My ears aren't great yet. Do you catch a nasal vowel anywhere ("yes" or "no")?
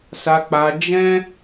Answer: yes